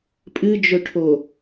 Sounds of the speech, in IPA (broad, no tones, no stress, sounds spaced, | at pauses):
pʼ ɨ d͡ʒ ɵ ʈʰ o